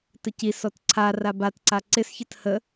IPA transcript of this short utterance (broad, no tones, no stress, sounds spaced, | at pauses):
t ə c i s ɔ t ǀʰ a r a b a t ǀ a ǀ ɪ s ç ə t h ə